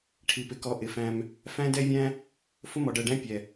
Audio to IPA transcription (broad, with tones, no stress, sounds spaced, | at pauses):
ʈʰ i˨ p ɪ˨ k ɔ˨˦ ʔ ɪ˨ f æ̃˧ m | f æ̃˦ d ɛ˦ vʲ æ̃˦ | f ʊ˦ m ɔ˨ ɖ ɜ˨ ɖ æ̃˦ pʲ ɛ˨